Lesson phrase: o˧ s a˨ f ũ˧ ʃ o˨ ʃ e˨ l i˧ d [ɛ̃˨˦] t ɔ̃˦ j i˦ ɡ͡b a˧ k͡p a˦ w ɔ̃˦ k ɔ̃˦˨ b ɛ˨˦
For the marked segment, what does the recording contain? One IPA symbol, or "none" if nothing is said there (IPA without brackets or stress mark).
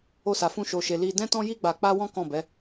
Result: ɛ̃˦